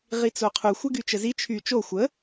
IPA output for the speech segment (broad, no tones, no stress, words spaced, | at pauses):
ʁit͡soqʰu xʷɛɡyt͡ʃəzi t͡ʃʰy t͡ʃo xʷə